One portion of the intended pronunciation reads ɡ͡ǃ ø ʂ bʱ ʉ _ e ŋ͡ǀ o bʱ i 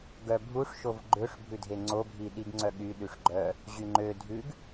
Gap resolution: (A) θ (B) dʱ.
B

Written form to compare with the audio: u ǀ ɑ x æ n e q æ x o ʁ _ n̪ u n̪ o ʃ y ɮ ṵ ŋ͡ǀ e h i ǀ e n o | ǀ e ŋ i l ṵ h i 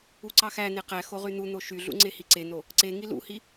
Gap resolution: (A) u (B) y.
B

